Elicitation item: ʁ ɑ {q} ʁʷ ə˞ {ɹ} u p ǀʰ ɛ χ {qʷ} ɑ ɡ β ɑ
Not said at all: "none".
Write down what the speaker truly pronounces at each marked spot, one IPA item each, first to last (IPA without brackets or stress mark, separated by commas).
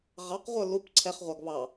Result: q, l, ʁʷ